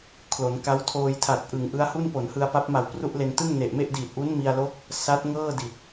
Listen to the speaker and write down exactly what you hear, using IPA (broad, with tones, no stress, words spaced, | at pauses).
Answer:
kʰlo˩˦nka˦˥w tʰoː˧jtʰa˨˩t̚ʔɯ˩˦ŋ ʔɯ˦˥a̯hu˥˩n po˩˦nhɯ˧a̯pa˦˥p̚ma˨˩w pru˥˩ʔle˧n tɯ˥˩ŋne˨˩ʔ me˥˩ʔdiː˨˩t̚ʔu˦˥n mi˧a̯lo˦˥k̚ | sa˦˥t̚ ŋɤː˥˩di˨˩t̚